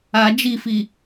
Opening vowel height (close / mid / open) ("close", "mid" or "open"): open